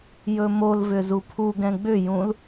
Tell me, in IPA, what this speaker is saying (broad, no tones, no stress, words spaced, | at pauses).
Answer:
jɵmolvʏ zupʰuɡɛ̃ ɡ͡bʏjũl